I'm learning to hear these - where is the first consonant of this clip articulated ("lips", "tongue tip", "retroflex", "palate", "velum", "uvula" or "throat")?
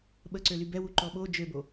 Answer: lips